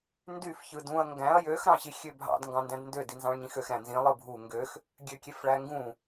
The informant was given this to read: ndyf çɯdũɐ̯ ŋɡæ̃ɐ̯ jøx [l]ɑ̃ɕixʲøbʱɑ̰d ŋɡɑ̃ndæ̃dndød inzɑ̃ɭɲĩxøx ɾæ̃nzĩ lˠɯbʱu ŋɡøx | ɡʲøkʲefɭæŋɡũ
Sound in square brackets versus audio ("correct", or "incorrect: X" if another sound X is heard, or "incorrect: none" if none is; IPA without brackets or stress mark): incorrect: ɾ